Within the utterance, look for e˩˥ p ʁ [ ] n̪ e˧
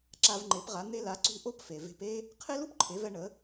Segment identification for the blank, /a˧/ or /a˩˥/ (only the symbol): a˩˥